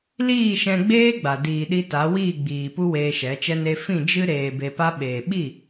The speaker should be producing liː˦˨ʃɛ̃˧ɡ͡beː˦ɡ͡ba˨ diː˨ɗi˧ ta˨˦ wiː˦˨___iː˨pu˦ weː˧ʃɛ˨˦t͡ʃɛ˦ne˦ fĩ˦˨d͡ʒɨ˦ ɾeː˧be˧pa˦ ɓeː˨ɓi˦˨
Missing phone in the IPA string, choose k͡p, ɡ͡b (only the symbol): ɡ͡b